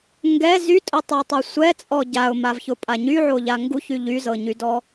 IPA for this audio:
ŋɡɛ zytʼʊtˤɛtˤɛ sʷɛt͡sʼɔ ɟaʊ̯mavçʊpʼa ɲyʕoʎa ŋɡuçy ʎyzɤɲydɔ

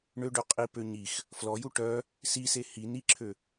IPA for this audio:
ɳøɖø qʼipø ɲix | flɔju ʈœ | sise hi niǁʰø

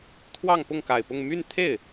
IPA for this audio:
t̪ʰwɑ˥˧ŋpʊ˥˩ŋka˨˩ɪ̯pʊ˥˧ŋ my˥˧nt̪ʰe˥˩ɪ̯

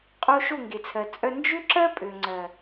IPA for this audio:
qʼo˦ ʃo˦˨ŋɡe˨t͡sʰɜ˨ t͡sʼœ˦ nd͡ʒø˦ǁɜ˦ pʼø˨ŋ͡ǀɜ˨

